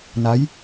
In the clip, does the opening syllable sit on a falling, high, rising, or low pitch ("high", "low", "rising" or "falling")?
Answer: rising